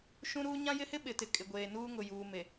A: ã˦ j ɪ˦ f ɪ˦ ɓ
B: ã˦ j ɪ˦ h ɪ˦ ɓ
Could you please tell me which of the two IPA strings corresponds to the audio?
B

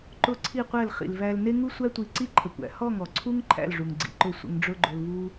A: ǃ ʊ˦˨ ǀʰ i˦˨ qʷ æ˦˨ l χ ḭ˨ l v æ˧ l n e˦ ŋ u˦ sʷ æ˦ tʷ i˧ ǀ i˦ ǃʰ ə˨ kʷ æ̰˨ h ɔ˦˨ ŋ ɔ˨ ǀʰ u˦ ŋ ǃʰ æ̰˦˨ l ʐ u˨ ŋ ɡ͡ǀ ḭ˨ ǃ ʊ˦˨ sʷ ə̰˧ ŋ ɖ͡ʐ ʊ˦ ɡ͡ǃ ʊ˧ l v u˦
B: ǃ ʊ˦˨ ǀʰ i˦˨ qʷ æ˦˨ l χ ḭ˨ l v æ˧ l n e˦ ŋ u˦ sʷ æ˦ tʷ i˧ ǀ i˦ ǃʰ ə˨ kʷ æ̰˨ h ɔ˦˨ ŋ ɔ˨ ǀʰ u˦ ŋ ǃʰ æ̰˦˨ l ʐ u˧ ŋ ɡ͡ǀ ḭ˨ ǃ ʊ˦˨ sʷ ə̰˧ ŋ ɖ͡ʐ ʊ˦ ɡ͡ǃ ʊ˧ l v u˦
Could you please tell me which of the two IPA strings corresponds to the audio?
A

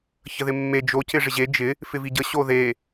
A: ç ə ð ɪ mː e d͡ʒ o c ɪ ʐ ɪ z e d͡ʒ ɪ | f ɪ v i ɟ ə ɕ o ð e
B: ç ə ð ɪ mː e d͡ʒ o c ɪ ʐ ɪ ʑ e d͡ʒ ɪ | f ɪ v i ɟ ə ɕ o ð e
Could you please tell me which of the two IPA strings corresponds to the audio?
B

